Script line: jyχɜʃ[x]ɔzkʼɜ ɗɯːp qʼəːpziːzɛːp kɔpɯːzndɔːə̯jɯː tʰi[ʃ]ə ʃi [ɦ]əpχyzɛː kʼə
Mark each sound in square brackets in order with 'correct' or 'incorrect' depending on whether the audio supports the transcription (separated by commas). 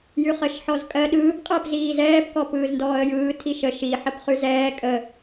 incorrect, correct, incorrect